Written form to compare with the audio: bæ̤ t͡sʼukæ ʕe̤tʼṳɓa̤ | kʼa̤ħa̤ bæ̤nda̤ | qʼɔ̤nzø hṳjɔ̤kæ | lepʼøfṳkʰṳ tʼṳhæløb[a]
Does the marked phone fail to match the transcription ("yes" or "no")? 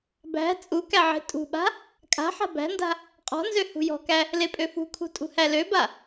no